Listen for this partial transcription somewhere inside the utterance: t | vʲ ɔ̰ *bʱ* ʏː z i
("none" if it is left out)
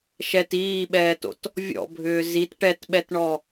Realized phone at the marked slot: bʱ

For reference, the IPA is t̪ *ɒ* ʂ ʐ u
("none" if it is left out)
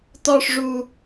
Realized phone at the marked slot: ɒ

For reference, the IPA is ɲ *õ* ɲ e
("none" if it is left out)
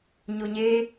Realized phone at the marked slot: o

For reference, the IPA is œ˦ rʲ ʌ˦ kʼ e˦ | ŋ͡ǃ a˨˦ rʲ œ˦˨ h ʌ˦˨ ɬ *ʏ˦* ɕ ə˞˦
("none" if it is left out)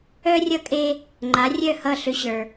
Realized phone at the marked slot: ʏ˦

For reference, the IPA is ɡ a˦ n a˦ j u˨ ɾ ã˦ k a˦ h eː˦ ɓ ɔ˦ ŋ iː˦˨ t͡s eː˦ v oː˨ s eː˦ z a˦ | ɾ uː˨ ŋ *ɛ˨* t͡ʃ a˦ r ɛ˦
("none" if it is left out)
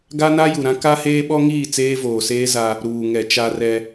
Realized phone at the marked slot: ɛ˨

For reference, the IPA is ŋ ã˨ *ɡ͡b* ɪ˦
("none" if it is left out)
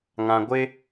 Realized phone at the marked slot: ɡʷ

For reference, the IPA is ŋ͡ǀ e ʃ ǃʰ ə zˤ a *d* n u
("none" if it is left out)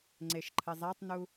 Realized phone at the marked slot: tˤ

